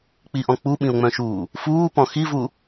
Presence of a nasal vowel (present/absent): present